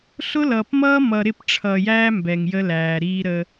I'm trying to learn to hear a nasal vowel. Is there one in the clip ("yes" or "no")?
no